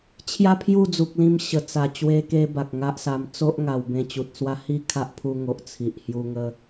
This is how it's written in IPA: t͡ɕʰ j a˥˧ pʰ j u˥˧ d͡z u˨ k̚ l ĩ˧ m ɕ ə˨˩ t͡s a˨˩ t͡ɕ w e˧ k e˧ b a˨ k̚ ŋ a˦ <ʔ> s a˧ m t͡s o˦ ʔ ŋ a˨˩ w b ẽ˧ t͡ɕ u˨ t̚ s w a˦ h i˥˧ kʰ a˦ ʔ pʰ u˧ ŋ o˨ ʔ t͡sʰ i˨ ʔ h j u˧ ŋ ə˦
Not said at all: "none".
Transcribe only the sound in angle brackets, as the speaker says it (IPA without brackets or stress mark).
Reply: ʔ